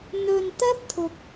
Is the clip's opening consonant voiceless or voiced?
voiced